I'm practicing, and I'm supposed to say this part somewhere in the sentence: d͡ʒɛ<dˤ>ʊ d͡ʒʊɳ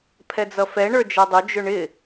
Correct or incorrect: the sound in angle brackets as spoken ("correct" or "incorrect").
correct